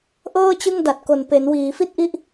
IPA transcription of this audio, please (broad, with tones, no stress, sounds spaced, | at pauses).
ʔ ɤː˥˩ t͡ɕ ɯ˥˩ ŋ d a˨˩ t̚ k o˨˩ n p e˩˦ n w iː˩˦ f i˥˩ t̚ ʔ i˥˩ ʔ